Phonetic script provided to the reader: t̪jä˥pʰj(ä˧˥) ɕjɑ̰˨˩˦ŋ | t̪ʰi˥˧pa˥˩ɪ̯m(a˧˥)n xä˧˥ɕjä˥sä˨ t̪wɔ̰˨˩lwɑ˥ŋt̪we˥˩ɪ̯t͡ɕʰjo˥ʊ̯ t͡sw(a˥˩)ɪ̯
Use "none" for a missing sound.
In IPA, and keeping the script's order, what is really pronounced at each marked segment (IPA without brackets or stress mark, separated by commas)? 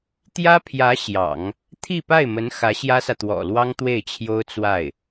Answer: ä˧˥, ə˧˥, a˥˩